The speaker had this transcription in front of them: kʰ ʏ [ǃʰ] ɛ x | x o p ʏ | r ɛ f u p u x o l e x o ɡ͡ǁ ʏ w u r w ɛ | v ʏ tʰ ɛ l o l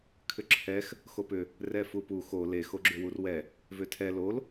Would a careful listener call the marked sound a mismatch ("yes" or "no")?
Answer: yes